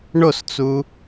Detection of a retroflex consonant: present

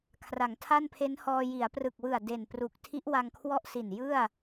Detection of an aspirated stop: present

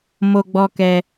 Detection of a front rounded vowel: absent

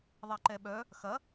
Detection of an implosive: present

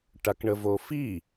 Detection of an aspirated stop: absent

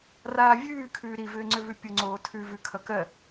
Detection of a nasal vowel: absent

